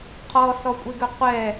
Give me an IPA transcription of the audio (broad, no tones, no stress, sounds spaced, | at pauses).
qʰ ɔ s ɔ kʷʼ e ɡ ʏ qʷ ɛ